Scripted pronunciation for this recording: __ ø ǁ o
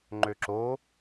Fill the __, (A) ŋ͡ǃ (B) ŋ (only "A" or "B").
A